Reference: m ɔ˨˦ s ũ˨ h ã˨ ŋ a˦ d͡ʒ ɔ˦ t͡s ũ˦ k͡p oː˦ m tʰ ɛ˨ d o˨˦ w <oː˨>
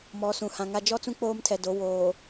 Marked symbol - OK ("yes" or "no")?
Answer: yes